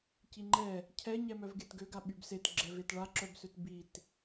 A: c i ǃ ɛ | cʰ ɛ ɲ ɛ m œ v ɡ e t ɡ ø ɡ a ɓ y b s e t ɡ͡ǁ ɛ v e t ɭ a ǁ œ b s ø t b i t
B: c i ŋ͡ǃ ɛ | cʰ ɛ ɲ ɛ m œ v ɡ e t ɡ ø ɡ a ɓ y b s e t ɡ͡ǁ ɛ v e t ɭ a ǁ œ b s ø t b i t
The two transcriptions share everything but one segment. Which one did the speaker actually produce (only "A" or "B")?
B